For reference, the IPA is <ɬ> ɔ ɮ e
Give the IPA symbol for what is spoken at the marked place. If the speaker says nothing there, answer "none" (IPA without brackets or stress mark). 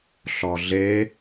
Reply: ɬ